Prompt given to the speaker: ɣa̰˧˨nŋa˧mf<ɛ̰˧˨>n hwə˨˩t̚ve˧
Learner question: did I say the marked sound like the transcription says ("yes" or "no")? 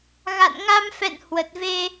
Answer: yes